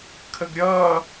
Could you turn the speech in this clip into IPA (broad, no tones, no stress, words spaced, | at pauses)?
kʰəɡɾʲʌː